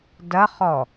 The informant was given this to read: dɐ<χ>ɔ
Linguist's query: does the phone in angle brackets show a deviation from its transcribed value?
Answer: no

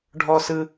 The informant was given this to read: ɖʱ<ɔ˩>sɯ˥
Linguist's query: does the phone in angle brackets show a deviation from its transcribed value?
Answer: yes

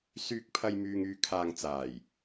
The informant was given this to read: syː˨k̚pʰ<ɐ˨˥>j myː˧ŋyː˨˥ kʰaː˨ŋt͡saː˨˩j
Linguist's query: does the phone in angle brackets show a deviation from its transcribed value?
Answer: yes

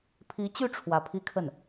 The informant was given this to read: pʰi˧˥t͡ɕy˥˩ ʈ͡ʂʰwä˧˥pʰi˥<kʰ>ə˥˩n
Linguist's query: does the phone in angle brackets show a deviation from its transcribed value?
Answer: no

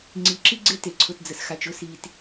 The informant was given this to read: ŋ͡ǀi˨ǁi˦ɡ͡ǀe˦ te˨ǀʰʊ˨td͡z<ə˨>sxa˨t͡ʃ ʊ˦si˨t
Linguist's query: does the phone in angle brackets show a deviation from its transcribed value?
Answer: no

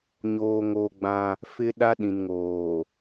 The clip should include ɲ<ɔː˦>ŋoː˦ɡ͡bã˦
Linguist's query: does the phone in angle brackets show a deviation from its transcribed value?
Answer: yes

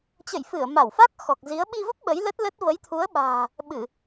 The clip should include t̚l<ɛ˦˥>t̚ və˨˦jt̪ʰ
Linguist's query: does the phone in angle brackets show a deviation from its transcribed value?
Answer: yes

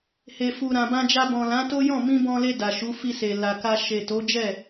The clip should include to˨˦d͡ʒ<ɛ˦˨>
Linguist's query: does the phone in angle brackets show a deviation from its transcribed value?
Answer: no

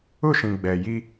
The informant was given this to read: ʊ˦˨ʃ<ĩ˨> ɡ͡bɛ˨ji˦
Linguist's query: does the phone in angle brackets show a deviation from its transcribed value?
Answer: no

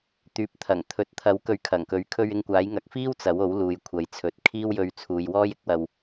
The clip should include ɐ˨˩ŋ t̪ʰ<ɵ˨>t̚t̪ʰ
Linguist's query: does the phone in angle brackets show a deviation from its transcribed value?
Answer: no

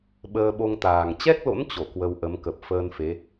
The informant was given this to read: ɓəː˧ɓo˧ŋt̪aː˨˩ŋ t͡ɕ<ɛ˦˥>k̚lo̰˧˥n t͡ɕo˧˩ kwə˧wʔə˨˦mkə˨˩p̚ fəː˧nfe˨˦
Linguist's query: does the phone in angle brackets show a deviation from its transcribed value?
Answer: no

